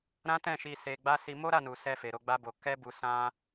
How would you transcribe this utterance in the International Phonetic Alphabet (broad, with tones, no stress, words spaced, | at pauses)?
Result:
ɾã˦tɛ̃˦˨ʃi˧ se˧ɡ͡ba˦ si˦ mo˦ɾa˦˨nu˨ sɛ˧fe˨ ɾo˨˦ɡ͡ba˦bo˧ kɛ˦bu˧ sã˦